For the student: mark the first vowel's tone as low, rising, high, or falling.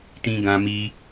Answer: high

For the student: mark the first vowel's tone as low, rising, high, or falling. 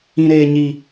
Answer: low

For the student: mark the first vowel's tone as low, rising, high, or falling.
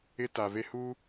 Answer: high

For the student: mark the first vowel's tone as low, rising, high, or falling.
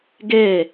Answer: falling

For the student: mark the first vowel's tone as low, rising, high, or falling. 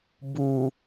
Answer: low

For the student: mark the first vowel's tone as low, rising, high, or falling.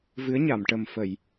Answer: rising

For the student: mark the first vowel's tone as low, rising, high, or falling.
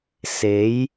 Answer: rising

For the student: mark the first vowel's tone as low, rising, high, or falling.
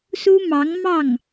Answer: high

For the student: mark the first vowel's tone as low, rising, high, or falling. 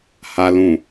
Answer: low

